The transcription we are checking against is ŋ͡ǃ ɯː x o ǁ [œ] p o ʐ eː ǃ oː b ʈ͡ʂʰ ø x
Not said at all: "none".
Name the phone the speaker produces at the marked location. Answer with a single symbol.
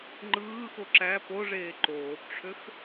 æ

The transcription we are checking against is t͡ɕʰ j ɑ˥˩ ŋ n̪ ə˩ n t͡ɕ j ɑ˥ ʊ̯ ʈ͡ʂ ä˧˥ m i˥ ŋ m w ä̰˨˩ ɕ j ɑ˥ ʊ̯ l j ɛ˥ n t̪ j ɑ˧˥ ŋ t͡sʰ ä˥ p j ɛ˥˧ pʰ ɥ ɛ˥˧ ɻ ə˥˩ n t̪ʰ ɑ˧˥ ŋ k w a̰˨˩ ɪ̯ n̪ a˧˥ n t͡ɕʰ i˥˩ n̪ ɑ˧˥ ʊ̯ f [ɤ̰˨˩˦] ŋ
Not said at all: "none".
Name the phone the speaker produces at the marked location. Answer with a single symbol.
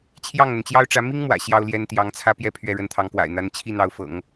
ɤ̰˨˩˦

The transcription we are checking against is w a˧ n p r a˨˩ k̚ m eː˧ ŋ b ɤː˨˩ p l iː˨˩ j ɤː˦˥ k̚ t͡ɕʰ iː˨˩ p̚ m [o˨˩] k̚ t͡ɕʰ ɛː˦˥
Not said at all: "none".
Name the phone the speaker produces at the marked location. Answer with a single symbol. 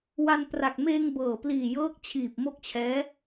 o˦˥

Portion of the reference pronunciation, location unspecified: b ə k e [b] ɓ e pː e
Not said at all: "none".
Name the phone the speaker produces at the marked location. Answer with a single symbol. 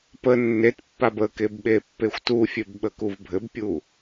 b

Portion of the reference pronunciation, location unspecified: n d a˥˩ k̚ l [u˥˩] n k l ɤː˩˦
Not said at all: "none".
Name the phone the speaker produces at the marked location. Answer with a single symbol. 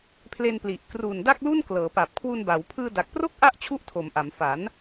u˥˩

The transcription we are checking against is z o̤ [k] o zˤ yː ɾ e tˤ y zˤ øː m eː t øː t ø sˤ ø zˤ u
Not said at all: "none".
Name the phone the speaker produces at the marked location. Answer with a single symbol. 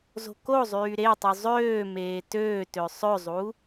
k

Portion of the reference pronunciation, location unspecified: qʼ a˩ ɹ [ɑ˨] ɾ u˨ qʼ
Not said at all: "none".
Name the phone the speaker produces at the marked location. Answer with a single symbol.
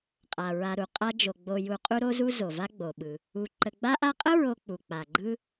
a˨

